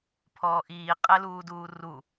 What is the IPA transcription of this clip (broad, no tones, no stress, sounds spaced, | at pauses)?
pʰ ɔː ʔ iː qʼ ɛ l uː d uː r u